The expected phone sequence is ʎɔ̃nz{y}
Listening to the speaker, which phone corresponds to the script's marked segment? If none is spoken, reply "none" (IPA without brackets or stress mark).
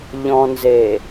e